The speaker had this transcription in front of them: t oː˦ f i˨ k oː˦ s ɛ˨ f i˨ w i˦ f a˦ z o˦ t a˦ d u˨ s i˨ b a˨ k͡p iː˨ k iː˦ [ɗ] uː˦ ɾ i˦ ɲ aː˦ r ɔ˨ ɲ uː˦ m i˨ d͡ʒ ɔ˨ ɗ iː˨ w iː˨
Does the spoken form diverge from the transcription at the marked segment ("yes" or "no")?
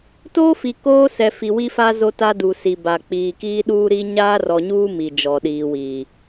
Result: no